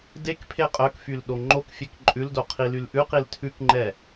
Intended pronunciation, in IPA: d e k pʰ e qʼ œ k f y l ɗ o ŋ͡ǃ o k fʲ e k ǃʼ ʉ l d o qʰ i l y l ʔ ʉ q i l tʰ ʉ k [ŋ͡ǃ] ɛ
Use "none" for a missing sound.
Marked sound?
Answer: ŋ͡ǃ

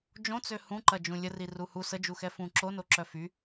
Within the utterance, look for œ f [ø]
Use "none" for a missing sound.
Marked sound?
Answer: y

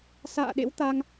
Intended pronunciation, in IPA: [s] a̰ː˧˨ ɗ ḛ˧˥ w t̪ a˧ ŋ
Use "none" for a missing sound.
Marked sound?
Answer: s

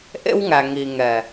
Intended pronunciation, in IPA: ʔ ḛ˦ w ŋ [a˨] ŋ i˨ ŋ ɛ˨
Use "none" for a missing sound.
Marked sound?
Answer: æ˨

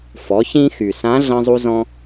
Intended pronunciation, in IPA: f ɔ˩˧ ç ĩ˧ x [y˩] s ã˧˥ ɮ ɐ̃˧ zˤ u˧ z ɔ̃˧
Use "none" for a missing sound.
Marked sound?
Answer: y˩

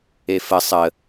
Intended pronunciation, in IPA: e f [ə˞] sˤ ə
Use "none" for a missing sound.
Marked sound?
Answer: ə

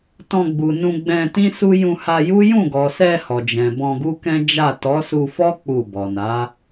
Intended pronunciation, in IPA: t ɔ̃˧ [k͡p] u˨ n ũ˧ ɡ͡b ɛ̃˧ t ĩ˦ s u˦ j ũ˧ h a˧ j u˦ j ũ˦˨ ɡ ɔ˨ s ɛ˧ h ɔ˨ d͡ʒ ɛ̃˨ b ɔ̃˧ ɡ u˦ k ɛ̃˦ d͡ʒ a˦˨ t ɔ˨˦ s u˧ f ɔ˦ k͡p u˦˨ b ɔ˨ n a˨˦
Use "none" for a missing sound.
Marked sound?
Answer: ɡ͡b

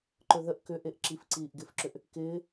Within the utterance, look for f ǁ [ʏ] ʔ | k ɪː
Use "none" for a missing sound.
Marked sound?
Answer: ʏ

